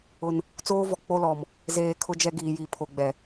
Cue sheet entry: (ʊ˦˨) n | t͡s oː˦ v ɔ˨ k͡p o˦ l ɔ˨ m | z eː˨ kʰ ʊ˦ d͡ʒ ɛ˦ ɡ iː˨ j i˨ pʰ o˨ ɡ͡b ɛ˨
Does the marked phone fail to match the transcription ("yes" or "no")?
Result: yes